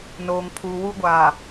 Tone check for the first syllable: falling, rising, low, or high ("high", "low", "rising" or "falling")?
low